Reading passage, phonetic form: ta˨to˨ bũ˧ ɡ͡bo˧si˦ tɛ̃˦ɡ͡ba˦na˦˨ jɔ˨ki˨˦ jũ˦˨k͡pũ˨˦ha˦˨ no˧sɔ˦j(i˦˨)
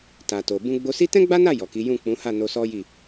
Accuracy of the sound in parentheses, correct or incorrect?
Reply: correct